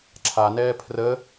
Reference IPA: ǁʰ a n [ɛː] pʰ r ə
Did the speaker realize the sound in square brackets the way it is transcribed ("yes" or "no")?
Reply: yes